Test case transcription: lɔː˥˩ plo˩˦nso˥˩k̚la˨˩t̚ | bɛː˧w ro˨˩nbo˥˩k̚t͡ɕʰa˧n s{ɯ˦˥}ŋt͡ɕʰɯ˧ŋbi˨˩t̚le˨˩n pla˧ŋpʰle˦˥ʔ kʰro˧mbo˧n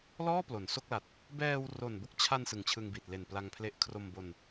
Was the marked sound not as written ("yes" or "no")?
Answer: yes